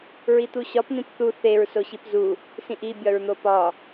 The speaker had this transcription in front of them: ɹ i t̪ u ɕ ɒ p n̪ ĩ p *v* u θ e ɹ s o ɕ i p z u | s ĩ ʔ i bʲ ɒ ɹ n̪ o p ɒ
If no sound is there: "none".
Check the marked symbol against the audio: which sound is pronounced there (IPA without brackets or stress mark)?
θ